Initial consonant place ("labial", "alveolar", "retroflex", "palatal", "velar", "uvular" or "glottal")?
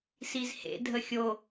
alveolar